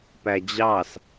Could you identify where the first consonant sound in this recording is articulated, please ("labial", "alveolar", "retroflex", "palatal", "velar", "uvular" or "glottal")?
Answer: labial